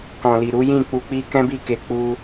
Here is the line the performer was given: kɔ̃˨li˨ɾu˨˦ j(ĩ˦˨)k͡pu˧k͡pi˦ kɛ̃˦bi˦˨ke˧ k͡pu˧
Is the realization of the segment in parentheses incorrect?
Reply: no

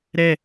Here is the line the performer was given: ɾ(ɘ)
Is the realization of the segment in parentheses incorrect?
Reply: yes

